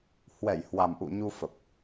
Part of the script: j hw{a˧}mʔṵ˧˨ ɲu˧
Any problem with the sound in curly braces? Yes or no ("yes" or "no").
yes